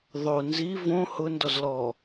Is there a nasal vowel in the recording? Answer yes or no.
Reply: yes